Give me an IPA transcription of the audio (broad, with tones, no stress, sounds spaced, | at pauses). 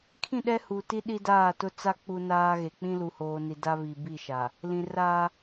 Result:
kʰ ĩ˦˨ ɗ ɛ˦ h u˨ t i˦ ɗ i˦ d aː˦˨ t ʊ˦ t͡s a˦ k͡p u˦ n aː˦ ɣ e˨ k͡p ĩ˦ l u˨ h oː˨ n i˨ d a˦ β i˨ b i˦˨ ʃ a˨ | l ĩ˨ r aː˦